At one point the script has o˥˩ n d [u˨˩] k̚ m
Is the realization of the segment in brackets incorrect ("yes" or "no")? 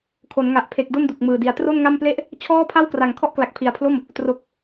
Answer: no